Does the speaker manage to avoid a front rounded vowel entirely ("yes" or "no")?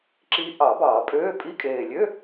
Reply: no